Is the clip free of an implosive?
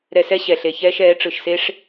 yes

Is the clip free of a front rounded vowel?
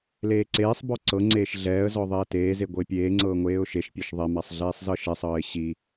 yes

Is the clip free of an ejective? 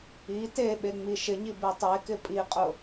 no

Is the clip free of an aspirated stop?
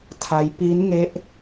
no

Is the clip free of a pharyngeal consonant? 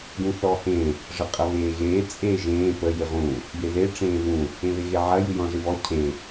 no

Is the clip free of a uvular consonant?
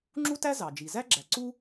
yes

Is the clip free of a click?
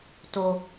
yes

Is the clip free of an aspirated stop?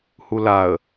yes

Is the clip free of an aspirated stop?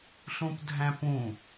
yes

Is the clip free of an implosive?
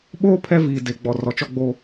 no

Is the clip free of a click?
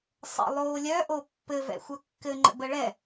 no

